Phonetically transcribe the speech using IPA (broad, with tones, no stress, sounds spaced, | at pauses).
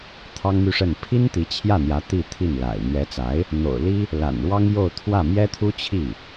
t̪ʰ ɑ˥ ŋ m y˥˧ ʂ ə˥˩ n pʰ i˥ n t̪ i˧˥ t͡ɕʰ j ä˥˩ n̪ j ä˧˥ t̪ i˥˧ t̪ʰ i˥˩ n l a̰˨˩ ɪ̯ n̪ ɥ ɛ˧˥ t͡s a˧˥ ɪ̯ | n̪ o̰˨˩ ʊ̯ l i˥ | l a̰˨˩ n ɻ w ɑ˥ ŋ j o˥˧ ʊ̯ t̪ʰ w ä˥˩ m j ɛ˥ t̪ʰ u˥ t͡ɕʰ i˥˩